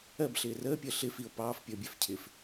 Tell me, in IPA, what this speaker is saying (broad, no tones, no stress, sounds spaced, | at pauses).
ɜ b ɬ ɪː r əː pʲ əː ɬ ɪ f i o̯ p ɑː f pʲ əː bʲ ɛ f cʰ ɪː f